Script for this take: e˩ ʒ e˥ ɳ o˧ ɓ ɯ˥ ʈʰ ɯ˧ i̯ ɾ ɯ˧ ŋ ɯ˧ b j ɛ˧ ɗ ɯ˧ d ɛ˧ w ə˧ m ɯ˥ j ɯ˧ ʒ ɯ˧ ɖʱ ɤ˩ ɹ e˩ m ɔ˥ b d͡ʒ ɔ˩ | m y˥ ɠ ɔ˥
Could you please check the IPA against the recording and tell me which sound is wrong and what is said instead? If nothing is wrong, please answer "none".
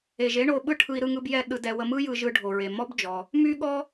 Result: ɤ˩ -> o˩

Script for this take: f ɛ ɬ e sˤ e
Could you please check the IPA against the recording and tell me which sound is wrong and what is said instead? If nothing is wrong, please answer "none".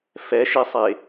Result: ɬ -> ʃ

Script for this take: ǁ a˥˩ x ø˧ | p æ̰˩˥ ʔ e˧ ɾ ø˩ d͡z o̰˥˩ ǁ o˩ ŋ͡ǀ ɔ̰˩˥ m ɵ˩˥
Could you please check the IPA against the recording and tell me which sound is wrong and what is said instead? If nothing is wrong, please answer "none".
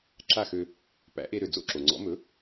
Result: none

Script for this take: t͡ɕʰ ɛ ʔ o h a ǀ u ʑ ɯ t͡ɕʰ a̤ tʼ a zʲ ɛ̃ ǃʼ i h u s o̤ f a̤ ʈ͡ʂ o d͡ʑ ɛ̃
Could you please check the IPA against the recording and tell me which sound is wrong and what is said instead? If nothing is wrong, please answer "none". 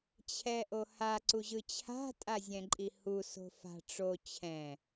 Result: d͡ʑ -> t͡ɕʰ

